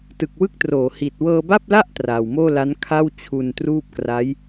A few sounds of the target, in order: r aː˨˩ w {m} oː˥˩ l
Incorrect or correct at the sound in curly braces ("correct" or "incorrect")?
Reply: correct